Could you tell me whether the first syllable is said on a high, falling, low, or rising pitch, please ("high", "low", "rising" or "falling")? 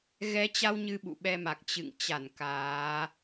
rising